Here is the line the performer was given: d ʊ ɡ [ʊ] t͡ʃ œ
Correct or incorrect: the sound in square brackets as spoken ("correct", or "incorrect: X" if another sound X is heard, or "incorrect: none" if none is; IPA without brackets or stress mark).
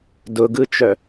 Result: incorrect: ɯ